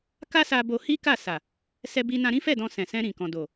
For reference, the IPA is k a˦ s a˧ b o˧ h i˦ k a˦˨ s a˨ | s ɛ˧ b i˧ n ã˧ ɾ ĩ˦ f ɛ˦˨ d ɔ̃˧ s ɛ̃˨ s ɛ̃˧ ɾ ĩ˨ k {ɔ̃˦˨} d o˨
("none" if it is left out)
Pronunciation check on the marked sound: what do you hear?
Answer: ɔ̃˨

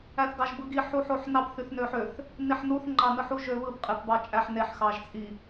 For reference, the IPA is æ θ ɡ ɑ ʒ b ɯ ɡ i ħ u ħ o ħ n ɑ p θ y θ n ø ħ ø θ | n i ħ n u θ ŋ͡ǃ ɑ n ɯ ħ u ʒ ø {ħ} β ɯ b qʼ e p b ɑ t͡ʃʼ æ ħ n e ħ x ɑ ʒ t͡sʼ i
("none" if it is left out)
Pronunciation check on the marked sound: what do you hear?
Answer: none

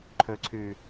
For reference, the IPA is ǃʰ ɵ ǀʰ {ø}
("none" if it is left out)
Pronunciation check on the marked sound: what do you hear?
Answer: ʉ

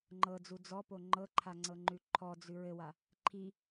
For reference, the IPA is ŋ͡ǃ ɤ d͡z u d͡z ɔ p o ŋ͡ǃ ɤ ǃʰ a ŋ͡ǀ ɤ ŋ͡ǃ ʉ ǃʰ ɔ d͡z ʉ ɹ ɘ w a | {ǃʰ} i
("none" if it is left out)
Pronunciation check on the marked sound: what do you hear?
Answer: ǃʰ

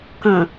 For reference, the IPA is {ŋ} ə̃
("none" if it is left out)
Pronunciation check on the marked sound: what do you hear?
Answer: k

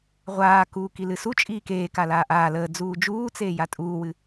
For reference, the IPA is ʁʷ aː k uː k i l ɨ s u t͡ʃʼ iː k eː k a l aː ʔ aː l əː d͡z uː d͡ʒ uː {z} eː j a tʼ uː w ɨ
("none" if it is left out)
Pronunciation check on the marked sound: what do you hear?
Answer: t͡s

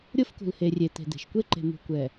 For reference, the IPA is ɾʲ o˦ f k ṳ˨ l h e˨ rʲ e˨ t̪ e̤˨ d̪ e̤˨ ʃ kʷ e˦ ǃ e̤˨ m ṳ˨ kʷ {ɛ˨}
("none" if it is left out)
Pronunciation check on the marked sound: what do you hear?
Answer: ɛ˨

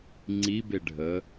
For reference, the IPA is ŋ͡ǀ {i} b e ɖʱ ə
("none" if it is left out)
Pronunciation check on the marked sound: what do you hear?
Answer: i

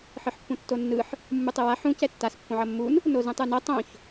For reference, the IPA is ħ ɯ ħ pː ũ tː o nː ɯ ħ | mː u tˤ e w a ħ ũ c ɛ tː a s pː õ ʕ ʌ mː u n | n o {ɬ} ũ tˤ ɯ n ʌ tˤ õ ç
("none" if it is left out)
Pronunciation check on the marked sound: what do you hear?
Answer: z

